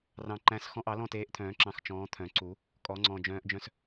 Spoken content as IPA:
r ɑ̃˨ ǃ æ̃˨˦ s x ɔ̃˦ ʔ ɑ˨˩˦ l ɔ̃˥˨ t eː˨˦ ʔ t̪ʰ œ̃ː˨˩˦ ǁ ɑ̃˨ x t͡ʃ ɔ̃ː˨˦ t̪ʰ œ̃˨˩˦ ǀ u˨˩˦ | kʼ ɔ˨˩˦ ŋ͡ǀ ɔ̃˨ d͡ʒ œ̃ː˨˦ ʔ d͡ʒ œ̃˦ s

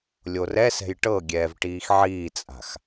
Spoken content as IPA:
lʲ o r ɛ s ɛ̤ j ʈ ɤ ɡʲ ɛː v ʈ iː x ʕ iː t͡sʼ a̤ x

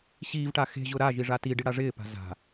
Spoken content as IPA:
ɕ iː v ʈ a x e̤ ʑ ʊ ɾ a ʒ i ʐ a t i ɖ i ɽ a ʐ ɪː p a̤ z a̤

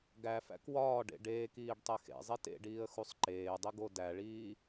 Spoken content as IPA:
ɡ æ f æ̰ k w ɒː ɖ ḛ ɖ eː k iː ɖ tˤ e x ḛ zˤ i t ḛ ɖ iː ə̯ x u sˤ ǃ eː dˤ i ɡ o d æ ɭ iː

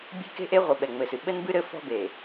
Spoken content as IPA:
bʲ e̤˦ k e̤˦ ʔ e˦ ʁʷ ɘ˨ ɓ ɛ˨ ŋ͡m ɘ˨ s ɨ˨ ɓ ɘ˦ n b ɨ˦ ɾ ɘ˨˦ f ɔ̤˦ b e˨

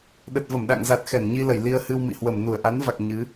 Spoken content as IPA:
ɗ ə˨˩ t̚ v ə˧˩ m ɗ a̰˧˨ ŋ z a˨˩ t̚ x ɛ˧˩ n ɲ i˧ l ə˧˩ j l i˧ ə̯ h ɨ˧ w m ḭ˧˨ h w ə˧˩ m n u˧˩ ə̯ ʔ a˨˦ n v a˨˩ k̚ ɲ ɨ˨˦

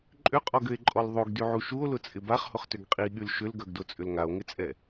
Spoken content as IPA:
ǃʼ ʏ qʼ ɔ ɡ ʏ e̯ ǃʼ ɔ l ðˤ o ɡ d y ʕ u ʃ u o̯ l ʊ t͡sʼ ɪ b a χ h ʊ χ t ʏ ɡ qʼ i ɠ y l ʃ ʏ l ɡ œ ɡ d o t͡sʼ ʏ l ŋ a o̯ ŋ ɪ t͡sʼ ɛ

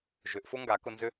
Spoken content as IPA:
ʒ ʏ˨˦ ʔ f ʊ˦ ŋ ɡ a˨˦ k ʊ˧ n z ʏ˦

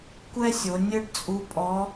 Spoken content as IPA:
kʷ ɛ˥ sʲ o˩˧ nʲ ɘ˥ ɖ t͡sʼ u˧˥ pʼ ɔ˧˥

